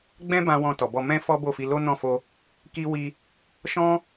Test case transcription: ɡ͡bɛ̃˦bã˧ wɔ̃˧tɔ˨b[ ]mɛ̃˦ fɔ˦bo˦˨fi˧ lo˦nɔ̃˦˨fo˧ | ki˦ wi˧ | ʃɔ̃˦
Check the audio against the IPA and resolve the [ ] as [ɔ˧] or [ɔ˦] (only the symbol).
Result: ɔ˧